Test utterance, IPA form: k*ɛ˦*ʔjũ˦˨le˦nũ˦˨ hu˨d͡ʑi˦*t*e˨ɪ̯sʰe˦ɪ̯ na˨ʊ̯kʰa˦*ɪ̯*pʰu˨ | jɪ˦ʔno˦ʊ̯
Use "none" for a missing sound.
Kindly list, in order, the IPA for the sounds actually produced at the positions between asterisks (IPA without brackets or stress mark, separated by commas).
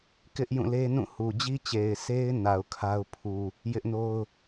ɪ˦, t͡ɕ, ʊ̯